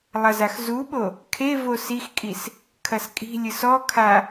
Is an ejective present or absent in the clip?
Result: present